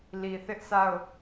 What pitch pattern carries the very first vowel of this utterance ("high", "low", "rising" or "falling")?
low